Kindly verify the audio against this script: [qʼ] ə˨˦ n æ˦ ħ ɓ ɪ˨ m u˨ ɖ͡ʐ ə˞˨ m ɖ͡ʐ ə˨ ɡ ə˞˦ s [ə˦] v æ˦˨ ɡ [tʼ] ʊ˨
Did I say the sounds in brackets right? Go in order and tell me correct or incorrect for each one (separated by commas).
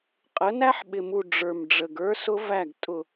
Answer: correct, incorrect, correct